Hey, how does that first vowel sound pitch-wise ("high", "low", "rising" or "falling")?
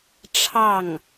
falling